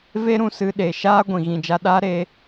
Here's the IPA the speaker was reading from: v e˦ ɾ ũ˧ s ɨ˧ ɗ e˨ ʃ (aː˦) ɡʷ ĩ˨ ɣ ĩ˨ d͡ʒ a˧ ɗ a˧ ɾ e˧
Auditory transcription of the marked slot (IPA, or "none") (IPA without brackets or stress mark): aː˦